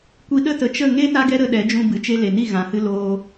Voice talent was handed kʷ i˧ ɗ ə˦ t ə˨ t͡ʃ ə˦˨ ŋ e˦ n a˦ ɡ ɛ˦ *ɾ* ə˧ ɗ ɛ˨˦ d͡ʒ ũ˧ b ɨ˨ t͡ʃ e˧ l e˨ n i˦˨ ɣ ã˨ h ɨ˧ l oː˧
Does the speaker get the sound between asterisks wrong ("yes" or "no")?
no